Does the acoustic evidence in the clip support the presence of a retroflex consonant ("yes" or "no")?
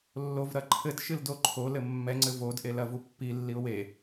no